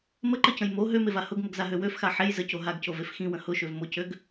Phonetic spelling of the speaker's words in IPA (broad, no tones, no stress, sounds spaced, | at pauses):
m ə ǃ ə c ə̃ j m o ɦ ø m e v a h ʊ ɡ m ə ɡ z a ɦ ø w ø f x a ħ e j z ə c o ɦ a ɡ c o v e f x ĩ w ə̃ h ʊ ʃ ø v m ʊ c ø ɡ